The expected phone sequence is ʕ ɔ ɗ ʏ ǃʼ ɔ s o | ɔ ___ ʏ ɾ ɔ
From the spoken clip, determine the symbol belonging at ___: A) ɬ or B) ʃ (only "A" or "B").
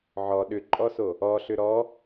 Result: A